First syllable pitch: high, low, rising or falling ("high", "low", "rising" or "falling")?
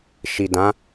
low